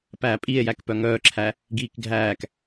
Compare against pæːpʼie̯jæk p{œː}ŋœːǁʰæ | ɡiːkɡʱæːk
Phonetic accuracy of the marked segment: incorrect: œ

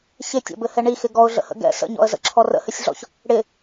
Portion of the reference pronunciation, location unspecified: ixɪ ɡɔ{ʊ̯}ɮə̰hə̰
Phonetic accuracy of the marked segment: correct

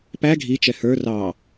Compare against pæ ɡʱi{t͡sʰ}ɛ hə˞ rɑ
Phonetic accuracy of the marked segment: incorrect: t͡ʃ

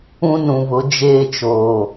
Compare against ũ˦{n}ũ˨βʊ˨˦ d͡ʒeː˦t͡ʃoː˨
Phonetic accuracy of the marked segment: correct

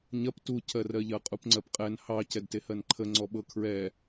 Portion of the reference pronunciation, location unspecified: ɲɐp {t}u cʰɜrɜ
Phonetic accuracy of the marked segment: correct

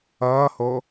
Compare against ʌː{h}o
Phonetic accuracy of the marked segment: correct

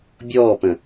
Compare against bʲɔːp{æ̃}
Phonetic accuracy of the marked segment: incorrect: ə̃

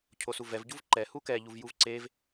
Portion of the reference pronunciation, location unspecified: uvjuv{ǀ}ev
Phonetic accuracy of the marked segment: correct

